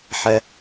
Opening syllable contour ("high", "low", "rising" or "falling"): high